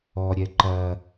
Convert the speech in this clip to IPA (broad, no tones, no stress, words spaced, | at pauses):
ɔɾʲɛ ǃɐ